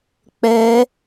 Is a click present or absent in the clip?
absent